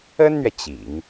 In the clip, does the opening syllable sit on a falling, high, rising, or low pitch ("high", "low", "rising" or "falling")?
high